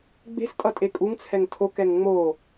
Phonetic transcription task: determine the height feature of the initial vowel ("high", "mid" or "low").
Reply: mid